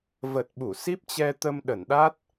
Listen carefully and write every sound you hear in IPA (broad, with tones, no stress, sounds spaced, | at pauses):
v ə˨˩ t̚ ɓ u˧˩ s i˦˥ p̚ t͡ɕ ɛ˧ t̪ ə˧ m ɗ ə˧˩ n ɗ a˦˥ t̚